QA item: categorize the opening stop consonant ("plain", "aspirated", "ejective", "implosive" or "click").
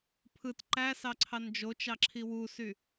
aspirated